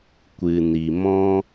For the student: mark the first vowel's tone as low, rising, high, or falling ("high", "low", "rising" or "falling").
low